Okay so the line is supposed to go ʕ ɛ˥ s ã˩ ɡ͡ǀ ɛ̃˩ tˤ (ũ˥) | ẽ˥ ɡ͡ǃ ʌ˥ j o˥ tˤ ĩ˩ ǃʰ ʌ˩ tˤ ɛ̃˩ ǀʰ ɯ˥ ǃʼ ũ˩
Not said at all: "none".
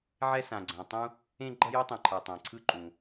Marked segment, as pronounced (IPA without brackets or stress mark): ũ˥